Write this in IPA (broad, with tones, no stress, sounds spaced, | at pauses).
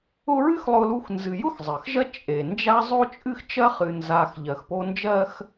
ʊ˦ ɹ ɨ˥ x lˠ ʊ˦ l u˦ x n z ɨ˨ j ʊ˥ x zˤ ɜ˩ x ʒ ɜ˦ t͡ʃʼ e˩ n d͡ʒ a˦ zˤ o˥ t͡ʃʼ ɨ˥ x t͡ʃ ɜ˥ χ ɨ˨ n z a˨ x ʎ ɜ˨ x p o˦ n d͡ʒ ɜ˥ x